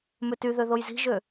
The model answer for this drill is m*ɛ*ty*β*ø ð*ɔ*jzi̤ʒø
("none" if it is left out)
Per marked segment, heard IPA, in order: ø, ð, o

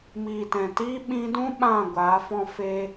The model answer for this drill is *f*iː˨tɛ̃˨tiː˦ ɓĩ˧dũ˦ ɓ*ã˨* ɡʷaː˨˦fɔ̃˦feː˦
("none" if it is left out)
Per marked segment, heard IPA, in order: m, ã˦˨

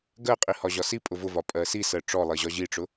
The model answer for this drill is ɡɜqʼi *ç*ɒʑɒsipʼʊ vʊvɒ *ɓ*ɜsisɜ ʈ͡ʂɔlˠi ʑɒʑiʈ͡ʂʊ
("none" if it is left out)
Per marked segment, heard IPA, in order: h, pʼ

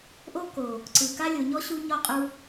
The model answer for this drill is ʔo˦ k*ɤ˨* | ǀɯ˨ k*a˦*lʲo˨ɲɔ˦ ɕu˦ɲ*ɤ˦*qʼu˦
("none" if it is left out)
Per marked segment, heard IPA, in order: o˨, a˦, ɔ˦

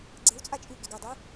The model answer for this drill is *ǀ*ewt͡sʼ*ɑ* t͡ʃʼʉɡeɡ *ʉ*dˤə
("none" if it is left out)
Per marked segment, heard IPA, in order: ɡ͡ǀ, a, ə

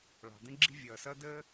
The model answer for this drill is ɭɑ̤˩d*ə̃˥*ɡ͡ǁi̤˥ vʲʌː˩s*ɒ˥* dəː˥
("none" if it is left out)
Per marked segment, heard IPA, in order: ə̃˥, ʌ˥

